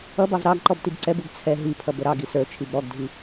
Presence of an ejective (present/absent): absent